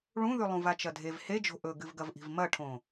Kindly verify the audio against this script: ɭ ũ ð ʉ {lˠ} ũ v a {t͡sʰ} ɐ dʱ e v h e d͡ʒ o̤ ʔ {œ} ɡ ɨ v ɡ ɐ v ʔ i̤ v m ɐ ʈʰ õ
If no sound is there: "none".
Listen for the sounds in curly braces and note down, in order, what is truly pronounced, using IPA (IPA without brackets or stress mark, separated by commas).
lˠ, t͡ʃ, ɵ